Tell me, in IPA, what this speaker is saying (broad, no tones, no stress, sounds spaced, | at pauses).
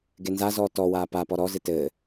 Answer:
ɡ e n z a z ɔː t ɔ w aː p a p ɔ ɾ ɔ z ɨ t ɘː